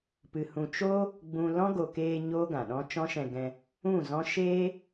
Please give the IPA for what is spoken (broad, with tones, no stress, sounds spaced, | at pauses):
p ɨ˨ h ũ˨ t͡ʃ o˦ | ɡ͡b ũ˧ l ɔ̃˦ ɡ o˨ k eː˧ ɲ oː˦ ɡ ã˨ ɗ ɔ̃˦ t͡ʃ ɔ̃˦ ʃ ɛ̃˧ ɡ ɛ̃˧ | ũ˦˨ z ɔ̃˦ ʃ eː˦